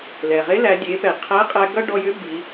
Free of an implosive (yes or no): yes